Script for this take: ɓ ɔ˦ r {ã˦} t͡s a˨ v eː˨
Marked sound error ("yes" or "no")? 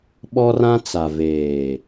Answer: no